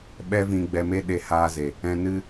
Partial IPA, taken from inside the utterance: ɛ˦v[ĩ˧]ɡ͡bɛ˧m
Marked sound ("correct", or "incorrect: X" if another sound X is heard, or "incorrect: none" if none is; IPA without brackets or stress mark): correct